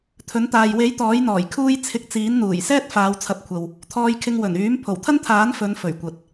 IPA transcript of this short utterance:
t̪ʰ ɵ˨˥ n t̪ aː˨ j w e˨˥ j t̪ ɔː˨˥ j n̪ ɔː˨˩ j kʰ uː˥ j t͡sʰ ɪ˧ k̚ t͡s iː˨˥ n n̪ uː˨˩ j s ɛː˥ t̚ f aː˨˧ w t͡sʰ ɐ˨˥ p̚ kʷʰ ɐ˨ w | t̪ʰ ɔː˧ j kʰ ɪ˧ ŋ w ɵ˨˩ n yː˨˥ m pʰ o˨˩ w t̪ʰ ɐ˥ n t̪ʰ aː˨˥ n f ɵ˨˧ n f ɵ˨˩ ɥ kʷ ɐ˨ t̚

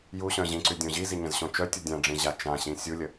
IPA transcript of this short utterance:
j u ɕ œ̃ ʑ ĩ ǀ y dʲ õ ʑ i z i ɲ ə̃ z ɕ õ t͡ʃ œ tʲ u dʲ ã ɖ͡ʐ ĩ ʑ a t͡ʃ ã ɕ ĩ sʲ u lʲ ə

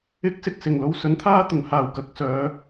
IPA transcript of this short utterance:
ɪ˨˥ k̚ s ɪ˨ k̚ s ɪ˨˩ ŋ l o˧ w s ɵ˨˥ n t̪ʰ aː˥ t̪ ʊ˨˩ ŋ h aː˨˩ w k ɐ˨ k̚ s œː˨˧

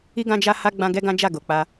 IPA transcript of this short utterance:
i˦ ɡ ã˦ d͡ʒ a˦ h a˦ ɡ͡b ã˦ ɡ ɛ˦ ɡ ã˦ d͡ʒ a˦˨ ɡ o˨ k͡p a˧

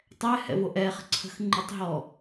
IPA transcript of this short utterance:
tˤ ɛ h ɛ̰ v o ʔ ɛ χ ə̤ ǀʰ ə̤ x ŋ͡ǃ u tˤ ɦ ɔ

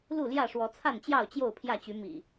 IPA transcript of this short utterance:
l u˥˨ l j ä˥˨ ʂ w ɔ˨˦ t͡sʰ a˥˨ n t͡ɕ j ɑ˥˨ ʊ̯ t͡ɕ j o˥˨ ʊ̯ pʰ j ä˥˨ t͡ɕ y˨˦ m ḭ˨˩

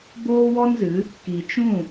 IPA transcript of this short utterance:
b oː˦ w ɔ˦ n z ɨ˨˦ | k i˨ t͡ʃ ũ˦˨

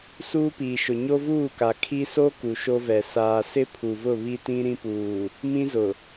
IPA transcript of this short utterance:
s uː˦ p iː˨ ʃ ʊ˨ ɲ o˦ v uː˦˨ k a˨ kʰ i˦ s o˦ k u˨ ʃ o˦ v ɛ˨ s aː˨ s ɪ˦ pʰ u˨ v ʊ˦˨ β i˦ t ĩ˦ ɾ ĩ˦ p uː˨ | m ĩ˦ z ʊ˨

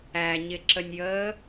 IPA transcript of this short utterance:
æ ɲ ɪ ǁ ə nʲ j əː

